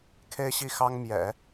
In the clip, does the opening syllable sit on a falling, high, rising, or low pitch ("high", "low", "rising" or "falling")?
high